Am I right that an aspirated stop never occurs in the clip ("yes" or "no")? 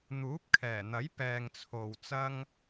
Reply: no